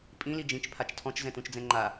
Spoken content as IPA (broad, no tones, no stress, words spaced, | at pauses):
pʼĩ lid͡ʒĩt͡ʃ pʰat͡ʃtʰɔ̃t͡ʃ zɛ̃tũt͡ʃd͡zɛ̃ŋ͡ǃa